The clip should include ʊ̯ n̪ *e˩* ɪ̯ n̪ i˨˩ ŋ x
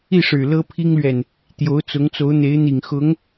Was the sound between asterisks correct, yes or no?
no